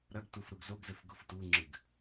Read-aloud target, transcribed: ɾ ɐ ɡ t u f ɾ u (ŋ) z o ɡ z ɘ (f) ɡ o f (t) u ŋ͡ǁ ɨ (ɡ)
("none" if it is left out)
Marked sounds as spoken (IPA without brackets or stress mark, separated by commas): ɡ, f, t, ɡ